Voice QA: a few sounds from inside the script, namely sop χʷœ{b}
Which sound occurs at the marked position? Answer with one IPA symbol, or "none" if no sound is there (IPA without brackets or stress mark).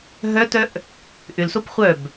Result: b